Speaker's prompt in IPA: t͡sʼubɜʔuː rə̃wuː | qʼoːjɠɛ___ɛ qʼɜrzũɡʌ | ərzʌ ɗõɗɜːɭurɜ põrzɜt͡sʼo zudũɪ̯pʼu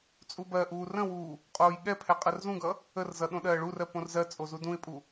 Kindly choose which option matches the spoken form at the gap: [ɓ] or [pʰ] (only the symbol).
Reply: pʰ